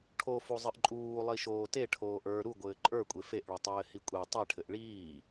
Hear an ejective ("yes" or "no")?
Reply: yes